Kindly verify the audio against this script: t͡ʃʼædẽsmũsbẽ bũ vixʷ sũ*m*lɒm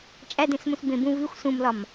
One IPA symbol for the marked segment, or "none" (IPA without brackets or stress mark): m